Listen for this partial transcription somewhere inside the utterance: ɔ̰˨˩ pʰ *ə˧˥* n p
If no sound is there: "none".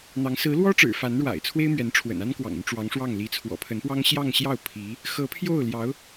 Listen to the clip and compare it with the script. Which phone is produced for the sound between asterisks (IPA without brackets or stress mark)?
ə˧˥